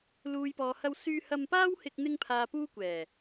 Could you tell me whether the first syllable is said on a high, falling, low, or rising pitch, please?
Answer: low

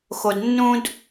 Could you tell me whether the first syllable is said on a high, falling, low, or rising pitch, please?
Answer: low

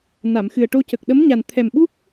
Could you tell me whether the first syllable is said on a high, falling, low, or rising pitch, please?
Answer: low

